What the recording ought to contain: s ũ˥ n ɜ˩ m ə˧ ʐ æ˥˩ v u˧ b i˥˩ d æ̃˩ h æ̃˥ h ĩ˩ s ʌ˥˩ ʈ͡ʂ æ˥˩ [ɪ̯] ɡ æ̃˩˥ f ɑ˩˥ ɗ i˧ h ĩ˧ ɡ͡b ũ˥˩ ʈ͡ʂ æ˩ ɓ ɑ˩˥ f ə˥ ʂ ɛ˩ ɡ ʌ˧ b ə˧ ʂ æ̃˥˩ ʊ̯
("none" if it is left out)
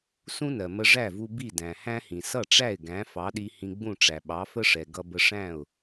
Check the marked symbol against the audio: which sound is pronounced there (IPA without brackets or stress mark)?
ɪ̯